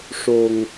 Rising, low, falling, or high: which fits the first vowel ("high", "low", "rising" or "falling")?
low